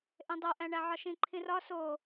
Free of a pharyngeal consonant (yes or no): no